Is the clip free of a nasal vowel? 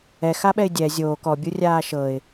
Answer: yes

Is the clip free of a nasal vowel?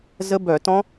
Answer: no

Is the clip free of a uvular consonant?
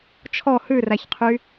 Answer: no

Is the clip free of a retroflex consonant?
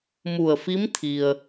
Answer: yes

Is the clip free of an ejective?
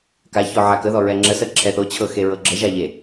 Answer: yes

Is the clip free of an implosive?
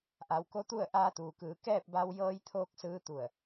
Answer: yes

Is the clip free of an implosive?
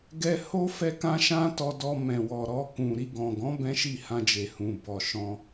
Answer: yes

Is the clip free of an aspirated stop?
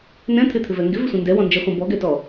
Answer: no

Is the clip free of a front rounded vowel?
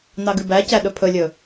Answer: yes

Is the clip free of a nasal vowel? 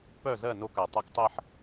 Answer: yes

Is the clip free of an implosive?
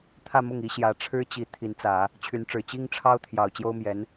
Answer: yes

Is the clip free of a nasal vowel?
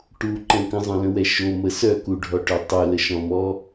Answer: no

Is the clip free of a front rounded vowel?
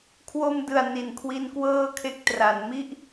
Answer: yes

